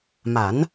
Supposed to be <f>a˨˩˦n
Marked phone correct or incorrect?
incorrect